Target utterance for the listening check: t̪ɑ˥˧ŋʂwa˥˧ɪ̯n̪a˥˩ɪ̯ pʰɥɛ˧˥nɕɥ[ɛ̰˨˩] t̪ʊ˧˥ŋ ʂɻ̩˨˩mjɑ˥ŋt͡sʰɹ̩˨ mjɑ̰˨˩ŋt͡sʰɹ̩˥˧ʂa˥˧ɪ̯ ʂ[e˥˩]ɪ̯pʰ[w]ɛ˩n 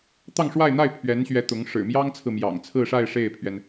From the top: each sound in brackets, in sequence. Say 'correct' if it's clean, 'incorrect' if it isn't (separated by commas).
incorrect, correct, incorrect